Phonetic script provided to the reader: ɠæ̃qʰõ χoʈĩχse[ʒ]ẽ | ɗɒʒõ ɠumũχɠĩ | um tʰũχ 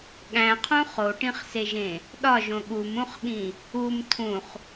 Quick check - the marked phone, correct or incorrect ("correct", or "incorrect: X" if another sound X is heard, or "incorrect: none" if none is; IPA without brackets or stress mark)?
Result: correct